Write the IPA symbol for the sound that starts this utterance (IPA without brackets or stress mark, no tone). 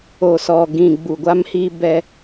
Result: o